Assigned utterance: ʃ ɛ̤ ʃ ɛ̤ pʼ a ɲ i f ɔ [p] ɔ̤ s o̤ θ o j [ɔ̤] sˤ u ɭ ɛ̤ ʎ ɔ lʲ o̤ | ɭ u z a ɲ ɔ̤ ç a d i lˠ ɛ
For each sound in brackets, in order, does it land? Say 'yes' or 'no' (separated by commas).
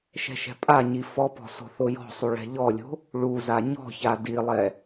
yes, yes